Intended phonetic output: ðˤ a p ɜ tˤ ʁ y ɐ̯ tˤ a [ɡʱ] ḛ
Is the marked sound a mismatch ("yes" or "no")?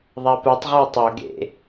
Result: yes